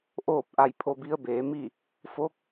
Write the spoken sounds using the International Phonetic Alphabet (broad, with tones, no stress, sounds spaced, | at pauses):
ʔ oː˥˨ p̚ ʔ a˧ j pʰ o˧ b i˧˥ ə̯ b eː˩˧ m i˥˨ | f o˧˥ k̚